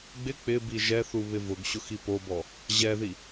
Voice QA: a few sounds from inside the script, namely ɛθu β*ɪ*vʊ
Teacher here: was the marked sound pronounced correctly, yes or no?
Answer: yes